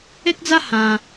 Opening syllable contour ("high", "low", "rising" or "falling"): high